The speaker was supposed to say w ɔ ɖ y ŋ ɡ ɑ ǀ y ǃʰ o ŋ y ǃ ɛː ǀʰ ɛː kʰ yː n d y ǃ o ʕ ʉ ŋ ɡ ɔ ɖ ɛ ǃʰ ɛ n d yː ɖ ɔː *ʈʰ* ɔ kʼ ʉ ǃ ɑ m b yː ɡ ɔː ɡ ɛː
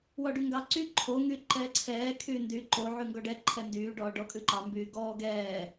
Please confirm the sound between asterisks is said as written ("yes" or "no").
no